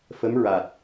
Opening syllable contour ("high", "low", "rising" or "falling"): rising